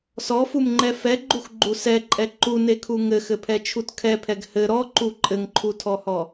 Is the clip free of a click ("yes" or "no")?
no